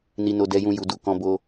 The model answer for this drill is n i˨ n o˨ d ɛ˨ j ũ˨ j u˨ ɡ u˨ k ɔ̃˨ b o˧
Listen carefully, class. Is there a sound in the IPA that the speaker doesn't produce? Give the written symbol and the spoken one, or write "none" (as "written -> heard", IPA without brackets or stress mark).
ɡ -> d